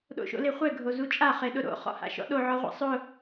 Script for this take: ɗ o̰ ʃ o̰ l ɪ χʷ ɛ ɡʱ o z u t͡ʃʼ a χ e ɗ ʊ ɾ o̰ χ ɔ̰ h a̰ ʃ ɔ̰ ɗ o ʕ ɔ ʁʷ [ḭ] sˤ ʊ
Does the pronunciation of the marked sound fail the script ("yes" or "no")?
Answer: no